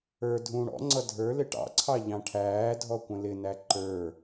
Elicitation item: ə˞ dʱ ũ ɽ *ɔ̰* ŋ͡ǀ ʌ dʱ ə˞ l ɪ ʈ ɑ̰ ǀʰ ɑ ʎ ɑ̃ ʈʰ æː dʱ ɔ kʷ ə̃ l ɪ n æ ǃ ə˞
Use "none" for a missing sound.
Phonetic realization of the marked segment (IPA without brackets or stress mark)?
ɔ̰